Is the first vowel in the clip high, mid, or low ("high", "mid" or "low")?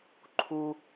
high